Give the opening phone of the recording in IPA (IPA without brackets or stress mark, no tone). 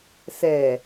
s